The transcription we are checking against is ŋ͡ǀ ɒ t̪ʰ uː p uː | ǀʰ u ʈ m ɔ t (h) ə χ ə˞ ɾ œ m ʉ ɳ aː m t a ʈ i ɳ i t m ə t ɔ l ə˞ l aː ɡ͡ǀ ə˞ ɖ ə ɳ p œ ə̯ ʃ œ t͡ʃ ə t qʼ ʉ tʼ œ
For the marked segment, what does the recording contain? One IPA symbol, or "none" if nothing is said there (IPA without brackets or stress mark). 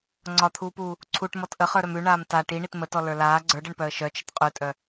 ʔ